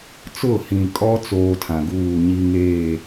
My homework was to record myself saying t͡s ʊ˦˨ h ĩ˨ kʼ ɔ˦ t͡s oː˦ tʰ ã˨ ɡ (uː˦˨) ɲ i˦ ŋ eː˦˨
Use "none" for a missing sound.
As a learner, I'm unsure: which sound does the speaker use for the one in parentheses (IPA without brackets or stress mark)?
uː˦˨